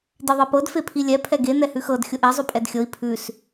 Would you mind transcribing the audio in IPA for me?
diðˤepɤd fepʰilʲɛ pʰɛɡe n̪ɛhʉxɤd xʲʊʔe zˤʉpʼɛdxʲɤi̯ pʰʉs

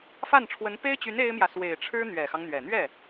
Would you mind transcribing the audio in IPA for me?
fa˥˩nʈ͡ʂʰwə˧˥n pe˥ɪ̯t͡ɕy˧˥n e˥ɪ̯mjä˨ swe˨˩ɪ̯ʈ͡ʂʰɻ̩˥ n̪ɥɛ˨˩xɑ˦ŋn̪ɥɛ˨˩ n̪ɥɛ˥˩

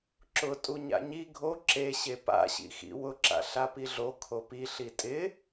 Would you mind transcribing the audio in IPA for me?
ǁʊ tʼuɲa̰ɲi ɡʱo ǁe ɕepa̰ɕḭxḭ wʊǁa̰ ɬapiɮo kʰopi ɬitʼɪ

